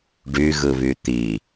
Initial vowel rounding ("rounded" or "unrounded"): rounded